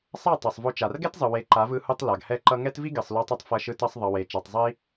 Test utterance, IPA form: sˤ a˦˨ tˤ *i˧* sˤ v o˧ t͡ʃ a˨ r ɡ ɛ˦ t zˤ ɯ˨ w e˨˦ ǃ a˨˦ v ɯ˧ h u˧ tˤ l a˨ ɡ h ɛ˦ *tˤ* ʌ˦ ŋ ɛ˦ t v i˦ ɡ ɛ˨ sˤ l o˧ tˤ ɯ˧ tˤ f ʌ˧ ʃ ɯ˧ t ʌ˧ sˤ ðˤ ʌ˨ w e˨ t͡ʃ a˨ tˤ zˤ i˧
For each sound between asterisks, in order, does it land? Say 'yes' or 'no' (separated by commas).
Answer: no, no